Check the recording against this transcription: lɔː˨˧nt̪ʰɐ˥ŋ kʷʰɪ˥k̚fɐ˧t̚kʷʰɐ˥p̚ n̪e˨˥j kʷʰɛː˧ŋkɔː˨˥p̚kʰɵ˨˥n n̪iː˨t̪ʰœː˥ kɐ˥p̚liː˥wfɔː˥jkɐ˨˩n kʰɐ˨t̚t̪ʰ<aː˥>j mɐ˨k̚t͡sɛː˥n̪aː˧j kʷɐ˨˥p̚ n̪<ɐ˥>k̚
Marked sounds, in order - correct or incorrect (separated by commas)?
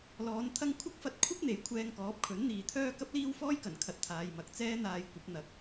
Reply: incorrect, incorrect